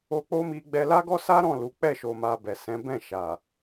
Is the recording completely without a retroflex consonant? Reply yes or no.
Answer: yes